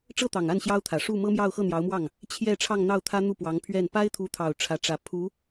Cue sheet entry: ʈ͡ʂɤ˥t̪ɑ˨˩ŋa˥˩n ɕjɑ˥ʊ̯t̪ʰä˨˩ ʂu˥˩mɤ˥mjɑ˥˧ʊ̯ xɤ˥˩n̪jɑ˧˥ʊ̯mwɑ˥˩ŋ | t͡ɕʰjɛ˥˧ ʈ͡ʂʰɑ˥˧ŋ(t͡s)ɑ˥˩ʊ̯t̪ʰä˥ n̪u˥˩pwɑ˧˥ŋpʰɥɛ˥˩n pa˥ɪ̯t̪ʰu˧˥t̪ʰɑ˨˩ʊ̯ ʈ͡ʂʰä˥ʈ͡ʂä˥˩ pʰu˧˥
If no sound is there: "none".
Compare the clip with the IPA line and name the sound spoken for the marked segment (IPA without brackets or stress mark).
n̪